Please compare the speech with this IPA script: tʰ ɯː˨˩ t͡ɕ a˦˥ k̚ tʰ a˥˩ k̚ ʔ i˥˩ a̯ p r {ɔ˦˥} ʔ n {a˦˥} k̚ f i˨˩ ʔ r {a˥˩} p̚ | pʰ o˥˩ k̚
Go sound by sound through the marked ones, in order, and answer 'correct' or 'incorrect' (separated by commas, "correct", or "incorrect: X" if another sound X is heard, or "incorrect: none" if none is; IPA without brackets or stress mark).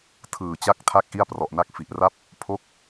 incorrect: ɔ˨˩, correct, correct